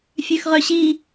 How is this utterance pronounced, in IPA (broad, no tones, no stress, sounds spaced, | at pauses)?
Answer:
fʲ ø x ʁ œ ɕ i